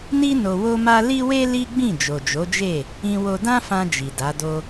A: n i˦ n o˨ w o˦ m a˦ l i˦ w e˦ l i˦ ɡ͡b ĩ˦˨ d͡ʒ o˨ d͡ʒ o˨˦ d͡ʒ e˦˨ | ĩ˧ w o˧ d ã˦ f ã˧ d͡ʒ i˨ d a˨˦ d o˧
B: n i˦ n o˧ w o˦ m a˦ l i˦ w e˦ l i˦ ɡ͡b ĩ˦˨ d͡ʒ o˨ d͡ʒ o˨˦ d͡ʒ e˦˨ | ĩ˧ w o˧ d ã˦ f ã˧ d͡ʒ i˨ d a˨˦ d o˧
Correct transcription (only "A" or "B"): B